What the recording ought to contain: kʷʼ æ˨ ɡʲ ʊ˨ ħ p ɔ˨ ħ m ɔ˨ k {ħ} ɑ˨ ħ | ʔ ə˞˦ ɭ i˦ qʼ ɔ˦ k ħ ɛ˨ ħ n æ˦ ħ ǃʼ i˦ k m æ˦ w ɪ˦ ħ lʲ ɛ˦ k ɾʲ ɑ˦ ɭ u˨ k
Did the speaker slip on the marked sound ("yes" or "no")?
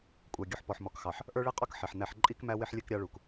yes